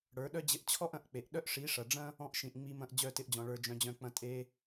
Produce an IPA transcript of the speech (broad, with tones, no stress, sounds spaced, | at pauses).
ɽ ə˞˨˦ ɗ œ˦ d͡ʑ ɪ˧ ʔ t͡ɕʰ ɔ˦ ʔ ɐ̃˨ ʔ k͡p e˨ ʔ ɗ œ˦ ʔ ʂ i˨˦ ʂ ɐ˨ ɖ͡ʐ ɐ̃˦ | ɔ̃˧ ʔ ʃ ĩ˨ ʔ ŋ͡m i˧ m ɐ̃˧ ʔ d͡ʑ œ˦˨ t ɪ˧ ʔ d͡ʑ ɔ̃˨ ɭ ə˞˨ d͡ʒ œ̃˨ d͡ʑ œ̃˨ k͡p ɐ̃˨ tʼ e˧